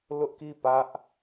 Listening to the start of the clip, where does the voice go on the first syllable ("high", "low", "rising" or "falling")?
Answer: high